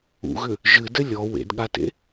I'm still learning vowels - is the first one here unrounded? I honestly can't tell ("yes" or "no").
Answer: no